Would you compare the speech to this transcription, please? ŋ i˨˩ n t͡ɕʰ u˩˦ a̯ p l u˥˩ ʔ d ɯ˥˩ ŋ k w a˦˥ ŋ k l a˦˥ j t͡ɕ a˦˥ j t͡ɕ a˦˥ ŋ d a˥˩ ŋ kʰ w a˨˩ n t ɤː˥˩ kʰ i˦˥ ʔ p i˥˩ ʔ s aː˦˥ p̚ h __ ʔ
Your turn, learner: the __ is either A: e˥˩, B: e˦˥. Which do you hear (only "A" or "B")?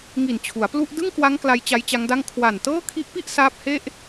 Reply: A